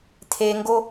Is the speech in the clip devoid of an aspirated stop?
no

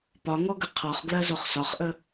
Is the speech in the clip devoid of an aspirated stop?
no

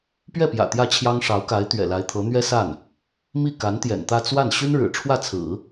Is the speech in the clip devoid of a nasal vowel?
yes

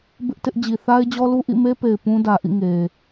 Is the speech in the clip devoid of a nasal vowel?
no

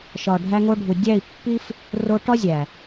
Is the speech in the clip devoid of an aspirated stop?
yes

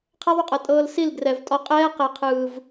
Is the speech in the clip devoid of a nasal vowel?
yes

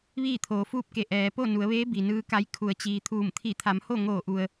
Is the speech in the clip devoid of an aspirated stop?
no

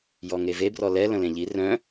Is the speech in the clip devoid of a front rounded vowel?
no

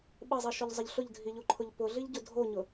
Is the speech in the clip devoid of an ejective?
yes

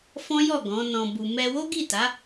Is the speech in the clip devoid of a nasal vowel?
no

